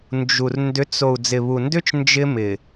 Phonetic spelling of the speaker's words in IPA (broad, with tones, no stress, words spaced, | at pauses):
nd͡ʒu˨r ndʏ˨˦t͡s o˨u̯d͡zɪ˨βu˨ndʏ˦t͡ʃ nd͡ʒɪ˦mɪ˨